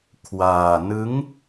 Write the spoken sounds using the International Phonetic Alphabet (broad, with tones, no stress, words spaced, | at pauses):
kʰwaː˧ nɯ˦˥ŋ